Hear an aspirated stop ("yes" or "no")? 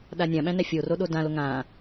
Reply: no